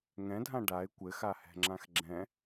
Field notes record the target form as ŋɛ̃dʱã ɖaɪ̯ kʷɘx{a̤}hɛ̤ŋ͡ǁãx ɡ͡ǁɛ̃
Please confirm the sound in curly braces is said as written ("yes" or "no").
no